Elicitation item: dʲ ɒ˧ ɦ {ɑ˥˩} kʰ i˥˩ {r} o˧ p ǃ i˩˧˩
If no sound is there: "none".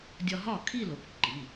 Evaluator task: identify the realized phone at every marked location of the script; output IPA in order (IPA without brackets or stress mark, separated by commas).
ɒ˥˩, l